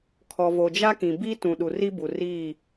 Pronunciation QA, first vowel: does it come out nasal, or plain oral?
oral